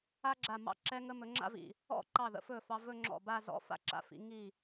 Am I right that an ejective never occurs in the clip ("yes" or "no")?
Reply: yes